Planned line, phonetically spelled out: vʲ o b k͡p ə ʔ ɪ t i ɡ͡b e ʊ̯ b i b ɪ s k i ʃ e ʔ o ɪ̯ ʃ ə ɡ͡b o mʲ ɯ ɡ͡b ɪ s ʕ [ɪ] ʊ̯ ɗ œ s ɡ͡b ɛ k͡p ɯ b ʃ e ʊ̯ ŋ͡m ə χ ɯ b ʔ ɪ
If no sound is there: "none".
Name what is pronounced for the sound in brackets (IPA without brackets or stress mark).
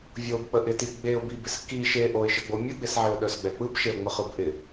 ɪ